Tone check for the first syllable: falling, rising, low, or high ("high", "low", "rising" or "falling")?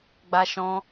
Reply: high